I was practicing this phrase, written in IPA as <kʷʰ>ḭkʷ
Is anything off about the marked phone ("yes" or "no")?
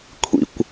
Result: no